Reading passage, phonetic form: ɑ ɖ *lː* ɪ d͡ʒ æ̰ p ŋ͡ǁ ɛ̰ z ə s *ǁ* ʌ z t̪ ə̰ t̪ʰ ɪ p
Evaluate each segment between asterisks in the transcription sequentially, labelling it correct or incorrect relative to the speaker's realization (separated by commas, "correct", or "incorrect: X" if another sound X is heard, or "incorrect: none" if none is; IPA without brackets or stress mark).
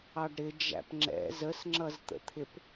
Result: incorrect: ɾ, incorrect: ŋ͡ǁ